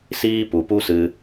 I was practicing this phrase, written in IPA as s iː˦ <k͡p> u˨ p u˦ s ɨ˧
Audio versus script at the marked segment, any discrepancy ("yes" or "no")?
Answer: yes